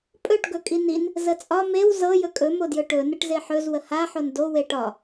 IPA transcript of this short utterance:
pʼ ɵ ʈ ɡ ɵ kʼ i n i n | z ə t͡sʼ ɒ m e w z ɤ j ɵ kʼ ɵ m o d j ɵ ʈ ɵ n ə ʈ z e ħ ɵ z w ə h a ħ o n d o w e ʈ ɒ

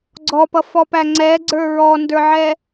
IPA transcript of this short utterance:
ɡ͡ǀ ɔ p ʌ f ɔ p æ ŋ͡ǀ ɛ ɡ͡ǀ ə˞ ɹ ɔ n d ə˞ ʕ ɛ

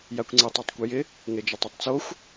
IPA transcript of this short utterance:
j a kʷ ŋ͡ǀ i tˤ ɔ tˤ kʷ i j ɪ | ŋ e d͡ʒ ɪ tˤ e tˤ t͡s o xʷ

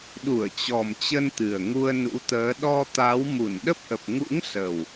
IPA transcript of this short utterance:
ɗ u˧˩ ə̯ t͡ɕ ɔ˨˩ m t͡ɕ ə˧ n t̪ ɨ˨˩ ə̯ ŋ u˧ ə̯ n ṵ˧˥ t̪ əː˨˦ ɗ ɔ˧ t̪ a˨˦ w m u˧˩ n ɗ ə˦˥ p̚ ʔ ə˨˩ p̚ ŋ ṵ˧˥ ŋ s ə˨˩ w

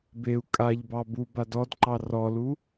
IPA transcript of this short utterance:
b e u̯ kʼ a ʎ b ɑ b u b a d ɔ d ǃ ɑ r ɔ l u

